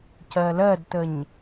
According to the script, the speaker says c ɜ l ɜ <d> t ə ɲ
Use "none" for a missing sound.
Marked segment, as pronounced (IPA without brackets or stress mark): d